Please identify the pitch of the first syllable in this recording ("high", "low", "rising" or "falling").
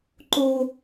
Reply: high